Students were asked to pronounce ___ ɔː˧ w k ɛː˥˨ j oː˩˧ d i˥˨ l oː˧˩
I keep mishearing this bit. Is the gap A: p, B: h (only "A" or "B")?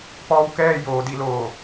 A